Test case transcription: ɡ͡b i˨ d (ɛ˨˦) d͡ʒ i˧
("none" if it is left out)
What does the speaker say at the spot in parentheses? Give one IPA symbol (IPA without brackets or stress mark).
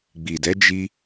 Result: ɛ˨˦